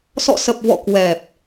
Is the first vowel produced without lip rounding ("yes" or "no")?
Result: no